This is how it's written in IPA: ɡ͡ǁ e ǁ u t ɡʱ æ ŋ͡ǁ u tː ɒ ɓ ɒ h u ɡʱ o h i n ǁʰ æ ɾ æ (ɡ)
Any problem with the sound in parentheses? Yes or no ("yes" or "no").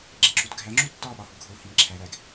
no